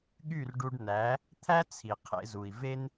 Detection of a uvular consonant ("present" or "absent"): present